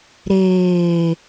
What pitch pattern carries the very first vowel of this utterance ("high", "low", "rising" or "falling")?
low